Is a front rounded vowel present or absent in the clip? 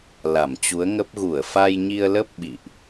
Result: absent